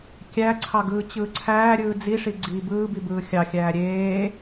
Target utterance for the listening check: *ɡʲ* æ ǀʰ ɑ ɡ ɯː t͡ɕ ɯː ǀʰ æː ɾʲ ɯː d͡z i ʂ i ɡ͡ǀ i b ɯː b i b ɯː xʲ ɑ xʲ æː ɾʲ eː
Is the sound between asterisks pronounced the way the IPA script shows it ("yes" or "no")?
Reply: no